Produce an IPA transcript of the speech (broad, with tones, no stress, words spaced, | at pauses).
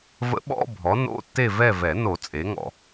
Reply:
və̰˧˥ɓɔ̰˧˥˧ bʱɔ˩˥no̰˧˥˧ tːe˦˨vɛ˦˨vɛ˨˩˦ no˨˩˦ t͡sʼe˩˥ŋɔ̰˨